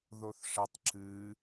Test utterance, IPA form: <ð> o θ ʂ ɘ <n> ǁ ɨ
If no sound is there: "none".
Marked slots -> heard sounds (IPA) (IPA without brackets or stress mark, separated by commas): ð, tˤ